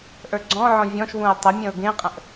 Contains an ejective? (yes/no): yes